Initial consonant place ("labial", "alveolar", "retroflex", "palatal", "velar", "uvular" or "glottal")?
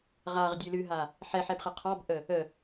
uvular